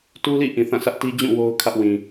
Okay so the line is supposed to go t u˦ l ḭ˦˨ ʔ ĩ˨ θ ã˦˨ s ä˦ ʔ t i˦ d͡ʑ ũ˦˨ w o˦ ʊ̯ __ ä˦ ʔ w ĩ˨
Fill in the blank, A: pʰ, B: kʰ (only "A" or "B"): B